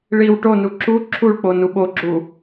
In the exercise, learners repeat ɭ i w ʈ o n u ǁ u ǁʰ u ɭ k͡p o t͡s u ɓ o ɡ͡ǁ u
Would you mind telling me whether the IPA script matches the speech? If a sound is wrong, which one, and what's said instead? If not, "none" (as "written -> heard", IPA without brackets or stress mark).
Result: t͡s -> n